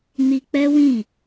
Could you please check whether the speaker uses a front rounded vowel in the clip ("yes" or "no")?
no